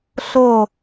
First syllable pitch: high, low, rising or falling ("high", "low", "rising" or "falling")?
falling